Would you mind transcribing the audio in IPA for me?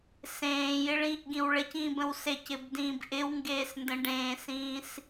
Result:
sẽːjɪɭĩːʔɡĩw ɭɪcĩːbə̃w secɪbdĩːb ʔɪwŋɡeːsndə̃ ɖẽːsĩːs

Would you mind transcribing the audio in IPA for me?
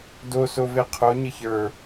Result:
dosove qʰo ɲəçə˞

